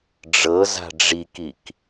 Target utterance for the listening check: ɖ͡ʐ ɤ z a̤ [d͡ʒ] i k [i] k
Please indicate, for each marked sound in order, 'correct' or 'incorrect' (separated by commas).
incorrect, correct